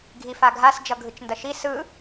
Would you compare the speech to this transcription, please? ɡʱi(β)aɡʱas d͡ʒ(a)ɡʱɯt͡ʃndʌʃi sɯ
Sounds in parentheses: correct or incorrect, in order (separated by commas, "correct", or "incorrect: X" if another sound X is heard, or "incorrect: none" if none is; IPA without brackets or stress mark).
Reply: incorrect: f, incorrect: ʌ